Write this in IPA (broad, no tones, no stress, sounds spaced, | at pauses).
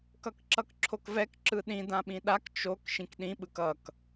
k ʌ k ǁ ʌ k ǁʰ o k v ɛ k ǁ ɯ ɗ ĩ d ã ɓ ĩ ɗ a k t͡ʃ o k ʃ ĩ k ɗ ĩ ɓ ɯ k ʌ k